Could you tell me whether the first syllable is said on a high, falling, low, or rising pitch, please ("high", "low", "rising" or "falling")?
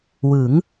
rising